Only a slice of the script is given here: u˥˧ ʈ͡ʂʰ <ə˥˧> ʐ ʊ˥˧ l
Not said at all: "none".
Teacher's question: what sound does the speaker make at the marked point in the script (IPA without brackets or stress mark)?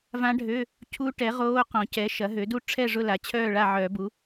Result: ɛ˥˧